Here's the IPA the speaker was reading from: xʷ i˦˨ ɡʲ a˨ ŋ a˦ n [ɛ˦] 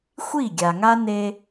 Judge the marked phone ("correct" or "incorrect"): incorrect